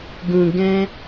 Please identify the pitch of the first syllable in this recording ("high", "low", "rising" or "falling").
low